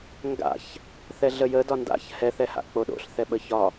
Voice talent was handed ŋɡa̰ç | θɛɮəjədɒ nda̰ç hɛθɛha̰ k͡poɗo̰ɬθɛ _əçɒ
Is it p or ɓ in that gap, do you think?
ɓ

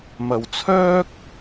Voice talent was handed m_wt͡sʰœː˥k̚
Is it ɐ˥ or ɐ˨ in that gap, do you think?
ɐ˨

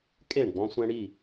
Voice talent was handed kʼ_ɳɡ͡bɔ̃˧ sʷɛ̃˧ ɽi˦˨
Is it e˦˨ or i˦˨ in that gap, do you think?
e˦˨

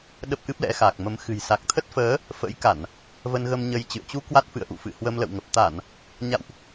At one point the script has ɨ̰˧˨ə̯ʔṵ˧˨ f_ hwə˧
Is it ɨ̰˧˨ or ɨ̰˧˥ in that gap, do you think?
ɨ̰˧˨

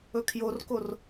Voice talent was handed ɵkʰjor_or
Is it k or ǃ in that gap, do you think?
k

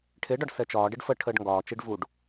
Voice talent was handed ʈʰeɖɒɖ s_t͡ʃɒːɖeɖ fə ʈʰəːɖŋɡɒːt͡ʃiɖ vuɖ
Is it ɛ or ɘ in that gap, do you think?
ɛ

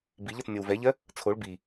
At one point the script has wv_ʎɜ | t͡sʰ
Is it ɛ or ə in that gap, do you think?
ɛ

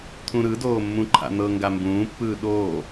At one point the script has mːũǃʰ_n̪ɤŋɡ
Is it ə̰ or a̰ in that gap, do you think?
a̰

